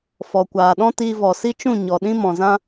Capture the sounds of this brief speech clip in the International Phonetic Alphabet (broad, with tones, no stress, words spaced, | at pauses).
fɔ˨ kʷaː˨ɗɔ̃˦tiː˧ vɔ˨si˦t͡ʃũ˦˨ ɲɔ˨ɗĩ˦ mɔ̃˨zã˦